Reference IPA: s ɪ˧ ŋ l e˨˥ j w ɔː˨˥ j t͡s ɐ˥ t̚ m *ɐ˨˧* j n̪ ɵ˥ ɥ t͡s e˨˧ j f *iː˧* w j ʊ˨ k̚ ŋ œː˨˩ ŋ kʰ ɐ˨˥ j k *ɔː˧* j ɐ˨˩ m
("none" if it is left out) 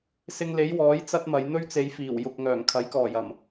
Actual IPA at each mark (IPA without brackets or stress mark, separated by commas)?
ɐ˨˧, iː˨˩, ɔː˨˩